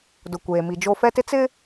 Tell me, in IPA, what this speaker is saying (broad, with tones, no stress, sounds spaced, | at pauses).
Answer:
d ʊ˨ kʷ eː˨ m i˨ d͡ʒ o˦ f ɛ˦ t ɪ˦ t͡s ɪ˦